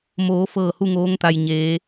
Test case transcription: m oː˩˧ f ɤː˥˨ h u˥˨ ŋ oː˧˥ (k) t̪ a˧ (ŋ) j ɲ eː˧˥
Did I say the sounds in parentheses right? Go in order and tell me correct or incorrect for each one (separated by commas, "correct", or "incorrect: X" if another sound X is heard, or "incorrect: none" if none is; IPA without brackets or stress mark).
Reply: incorrect: ŋ, incorrect: none